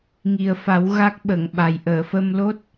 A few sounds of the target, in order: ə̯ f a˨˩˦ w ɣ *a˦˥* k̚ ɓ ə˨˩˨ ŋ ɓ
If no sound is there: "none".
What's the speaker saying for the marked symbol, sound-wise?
a˦˥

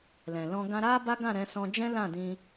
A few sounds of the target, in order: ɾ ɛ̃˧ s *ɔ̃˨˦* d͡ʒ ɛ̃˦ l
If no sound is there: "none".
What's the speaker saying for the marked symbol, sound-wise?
ɔ̃˧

